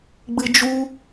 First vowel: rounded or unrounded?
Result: unrounded